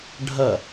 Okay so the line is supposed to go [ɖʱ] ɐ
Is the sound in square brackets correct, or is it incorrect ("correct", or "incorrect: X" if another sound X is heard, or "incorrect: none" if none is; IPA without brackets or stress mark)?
correct